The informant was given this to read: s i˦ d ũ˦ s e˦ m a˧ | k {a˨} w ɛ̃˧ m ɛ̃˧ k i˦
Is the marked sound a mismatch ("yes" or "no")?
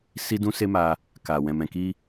no